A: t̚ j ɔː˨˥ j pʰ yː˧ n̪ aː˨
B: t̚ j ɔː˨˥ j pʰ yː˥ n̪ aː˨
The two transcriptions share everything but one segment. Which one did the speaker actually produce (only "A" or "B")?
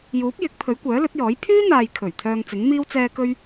B